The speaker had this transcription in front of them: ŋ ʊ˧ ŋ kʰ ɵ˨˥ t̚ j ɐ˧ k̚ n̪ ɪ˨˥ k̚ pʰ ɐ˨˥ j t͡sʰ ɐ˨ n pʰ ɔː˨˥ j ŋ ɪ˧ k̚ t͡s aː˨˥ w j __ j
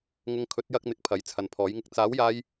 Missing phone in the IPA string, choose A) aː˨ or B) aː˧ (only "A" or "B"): B